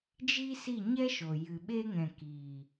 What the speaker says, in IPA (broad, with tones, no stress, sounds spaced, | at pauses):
d͡ʒ i˦ s i˦˨ ɲ ɛ˦ ʃ o˨ j ɨ˨ ɓ e˧ ŋ ɛ̃˨ k i˨